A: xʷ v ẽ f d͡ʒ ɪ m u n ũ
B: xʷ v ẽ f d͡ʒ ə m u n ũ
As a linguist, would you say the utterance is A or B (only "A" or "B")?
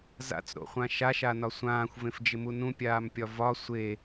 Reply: A